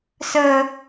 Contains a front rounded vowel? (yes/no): no